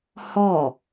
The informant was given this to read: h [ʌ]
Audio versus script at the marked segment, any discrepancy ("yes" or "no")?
yes